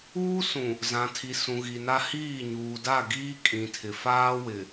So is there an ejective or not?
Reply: yes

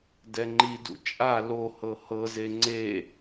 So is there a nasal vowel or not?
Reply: no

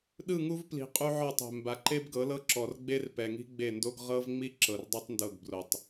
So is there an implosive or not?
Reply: yes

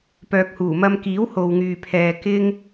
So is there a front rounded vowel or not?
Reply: yes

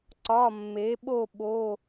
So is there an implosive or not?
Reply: yes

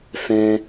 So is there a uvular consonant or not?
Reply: no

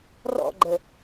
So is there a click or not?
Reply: yes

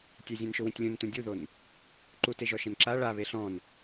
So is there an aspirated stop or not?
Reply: no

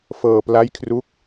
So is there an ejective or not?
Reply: no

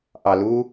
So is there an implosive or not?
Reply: no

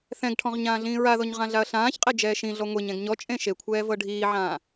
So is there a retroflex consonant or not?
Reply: yes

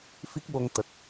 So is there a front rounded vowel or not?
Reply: no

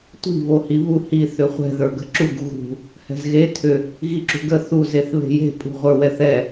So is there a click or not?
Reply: yes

